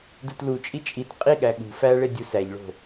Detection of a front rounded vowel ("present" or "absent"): absent